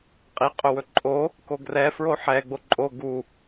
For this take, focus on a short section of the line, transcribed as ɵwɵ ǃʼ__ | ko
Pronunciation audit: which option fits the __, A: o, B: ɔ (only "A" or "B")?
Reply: A